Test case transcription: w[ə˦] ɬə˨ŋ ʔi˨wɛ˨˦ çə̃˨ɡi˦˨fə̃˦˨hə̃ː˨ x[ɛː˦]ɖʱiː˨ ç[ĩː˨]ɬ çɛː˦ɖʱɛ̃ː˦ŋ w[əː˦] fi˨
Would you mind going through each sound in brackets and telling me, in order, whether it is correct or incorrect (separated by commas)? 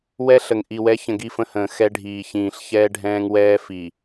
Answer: incorrect, incorrect, correct, incorrect